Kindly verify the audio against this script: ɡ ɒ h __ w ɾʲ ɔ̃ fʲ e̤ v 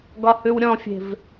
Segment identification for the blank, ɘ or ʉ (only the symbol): ʉ